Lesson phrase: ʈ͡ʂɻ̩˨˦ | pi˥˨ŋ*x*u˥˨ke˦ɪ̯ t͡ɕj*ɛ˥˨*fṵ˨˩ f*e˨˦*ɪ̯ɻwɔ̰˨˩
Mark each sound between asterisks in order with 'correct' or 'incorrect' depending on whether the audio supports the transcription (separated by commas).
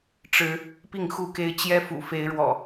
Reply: correct, incorrect, correct